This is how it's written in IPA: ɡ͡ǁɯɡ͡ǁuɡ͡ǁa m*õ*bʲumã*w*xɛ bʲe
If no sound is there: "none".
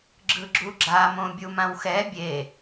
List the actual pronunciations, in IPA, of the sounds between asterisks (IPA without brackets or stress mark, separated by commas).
õ, w